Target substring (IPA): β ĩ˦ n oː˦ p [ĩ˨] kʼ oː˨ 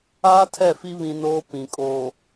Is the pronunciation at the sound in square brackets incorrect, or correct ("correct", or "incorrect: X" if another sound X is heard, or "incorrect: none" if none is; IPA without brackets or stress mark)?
correct